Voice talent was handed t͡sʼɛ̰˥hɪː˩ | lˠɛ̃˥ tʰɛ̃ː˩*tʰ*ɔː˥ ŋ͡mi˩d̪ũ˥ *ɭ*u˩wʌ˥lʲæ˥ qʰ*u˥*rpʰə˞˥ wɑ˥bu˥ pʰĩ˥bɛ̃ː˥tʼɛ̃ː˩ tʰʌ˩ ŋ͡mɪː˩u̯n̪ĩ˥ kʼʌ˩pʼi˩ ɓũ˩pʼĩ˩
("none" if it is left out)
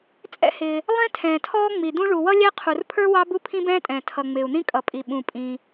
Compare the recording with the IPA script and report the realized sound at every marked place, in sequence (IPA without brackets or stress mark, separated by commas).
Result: tʰ, ɭ, u˩